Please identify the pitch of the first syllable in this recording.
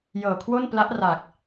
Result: low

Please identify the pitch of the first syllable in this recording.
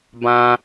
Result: high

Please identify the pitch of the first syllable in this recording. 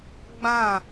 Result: falling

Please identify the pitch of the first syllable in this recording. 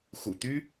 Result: low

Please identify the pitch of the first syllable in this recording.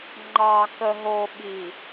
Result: low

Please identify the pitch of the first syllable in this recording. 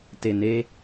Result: low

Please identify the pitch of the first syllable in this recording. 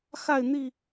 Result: falling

